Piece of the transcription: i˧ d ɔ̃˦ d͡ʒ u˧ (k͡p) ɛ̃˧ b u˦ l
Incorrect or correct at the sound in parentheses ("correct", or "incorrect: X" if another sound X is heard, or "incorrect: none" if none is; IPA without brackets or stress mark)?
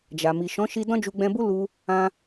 incorrect: ɡ͡b